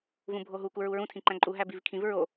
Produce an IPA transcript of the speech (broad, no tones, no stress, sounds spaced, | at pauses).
v ũ bʱ o ɦ u k u ɹ u ɹ ũ tʰ ĩ ǃ æ̃ ǃʼ u ɦ æ b i v kʰ ĩ v ɹ o